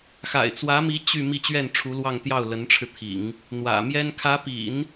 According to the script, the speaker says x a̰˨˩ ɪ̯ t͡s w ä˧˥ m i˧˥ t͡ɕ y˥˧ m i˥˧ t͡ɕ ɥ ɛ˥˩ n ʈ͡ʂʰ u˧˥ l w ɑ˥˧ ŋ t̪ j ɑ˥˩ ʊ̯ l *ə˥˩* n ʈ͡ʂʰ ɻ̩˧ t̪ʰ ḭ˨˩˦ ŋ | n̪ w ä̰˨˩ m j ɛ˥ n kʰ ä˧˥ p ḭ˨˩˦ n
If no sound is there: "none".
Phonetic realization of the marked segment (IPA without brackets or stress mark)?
ə˧˥